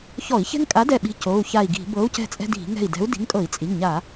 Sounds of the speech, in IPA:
ç ɔ˧˩˧ i̯ ç ɛ̤˦ ŋ kʼ a˨˥ d ɛ˧˩ ɓ i̤˨˥ c o˩˧˩ u̯ ç a˧˩ i̯ ɡ i̤˧˩˧ b ɤ˨˥ u̯ c ɛ̤˧˩ t͡sʼ ɛ̤˦ d i̤˧˩˧ ŋ ɛ̤˧˩ i̯ d ɛ̤˨˥ u̯ d i̤˨˥ ŋ kʼ ɤ˧˩˧ i̯ t͡sʼ i˩˧˩ ŋ ɲ a˧˩˧

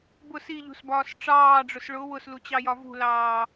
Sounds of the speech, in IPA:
b ʊ s i ʎ ṳ s b ɒː s ʈ͡ʂ ɑː ɖ͡ʐ ʊ s ɭ ʊ w ʊ s l u t͡ɕ ɑ j ɒ v ṳ l ɑː

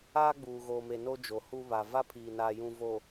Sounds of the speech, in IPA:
aː˦ ɡ͡b uː˨ ɣ oː˨ m e˨ n o˦ d͡ʒ o˨ h u˦ β a˨ v a˦ pʰ iː˨ n aː˨ j ũ˨ v o˨

